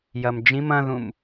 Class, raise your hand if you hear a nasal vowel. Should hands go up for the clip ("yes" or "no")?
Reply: yes